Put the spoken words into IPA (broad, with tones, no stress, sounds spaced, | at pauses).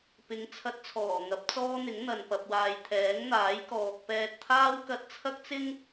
p ɪ˨˥ ŋ t͡sʰ ɐ˧ t̚ t͡sʰ ɔː˨˩ ŋ ɐ˨˥ p̚ t͡s ɔː˥ n̪ ɪ˨˥ ŋ n̪ ɐ˨ n p ɐ˨ p̚ w aː˨ j t̪ʰ ɛː˨˥ ŋ n̪ aː˨˥ j k ɔː˨ k̚ p ɛː˧ t̚ t̪ʰ aː˥ w k ɐ˧ t̚ t͡sʰ ɐ˥ k̚ t͡s ɪ˥ ŋ